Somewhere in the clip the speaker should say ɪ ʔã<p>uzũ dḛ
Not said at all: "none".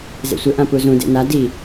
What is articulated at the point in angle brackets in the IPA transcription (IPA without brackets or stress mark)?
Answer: p